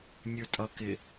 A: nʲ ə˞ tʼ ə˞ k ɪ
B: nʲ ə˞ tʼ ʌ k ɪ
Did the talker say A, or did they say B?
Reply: B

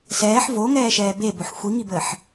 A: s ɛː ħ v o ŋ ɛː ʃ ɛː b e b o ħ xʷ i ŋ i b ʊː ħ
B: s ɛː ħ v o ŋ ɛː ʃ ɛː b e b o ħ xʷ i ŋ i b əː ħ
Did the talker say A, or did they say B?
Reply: B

